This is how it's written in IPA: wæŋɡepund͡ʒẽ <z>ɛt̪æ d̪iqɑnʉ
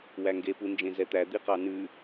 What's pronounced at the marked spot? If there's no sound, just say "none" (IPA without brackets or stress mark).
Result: z